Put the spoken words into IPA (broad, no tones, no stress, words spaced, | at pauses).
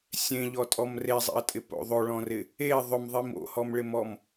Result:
sʲẽʎɔtʼɔm rezˤḭɐ̯tʼɪpo̰ ðˤoɭɔ̃rɪ | e ðˤʊmðˤim o̰hɔmɭɪmɔm